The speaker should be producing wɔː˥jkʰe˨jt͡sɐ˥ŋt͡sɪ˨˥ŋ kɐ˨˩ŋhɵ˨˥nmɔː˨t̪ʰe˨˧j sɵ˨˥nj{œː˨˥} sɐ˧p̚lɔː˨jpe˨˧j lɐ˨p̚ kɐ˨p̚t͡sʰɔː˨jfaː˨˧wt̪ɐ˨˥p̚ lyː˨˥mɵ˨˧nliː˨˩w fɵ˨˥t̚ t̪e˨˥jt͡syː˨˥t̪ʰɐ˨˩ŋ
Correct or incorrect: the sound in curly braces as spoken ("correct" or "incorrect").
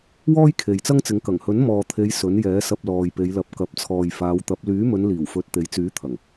incorrect